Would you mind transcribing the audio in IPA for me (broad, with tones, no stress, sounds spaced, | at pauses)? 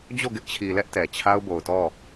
d͡ʑ o˦˨ ɡ ɪ˦ ʔ t͡ɕʰ i˨ l ɛ˦ ʔ t ɛ˨ t͡ɕʰ a˦ ʊ̯ b o˨ ʊ̯ t ɔ˦˨